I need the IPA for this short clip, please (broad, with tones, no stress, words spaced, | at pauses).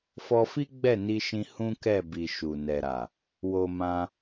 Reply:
fɔ˧fi˦ ɡ͡bɛ˦˨ni˧ʃĩ˧ hũ˦kɛ˦˨bi˨ ʃu˨nɛ˨ɾa˨ | wo˧mã˧